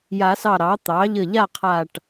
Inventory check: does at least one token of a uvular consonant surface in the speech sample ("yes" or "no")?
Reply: yes